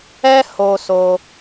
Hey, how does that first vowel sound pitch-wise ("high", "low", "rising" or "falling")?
high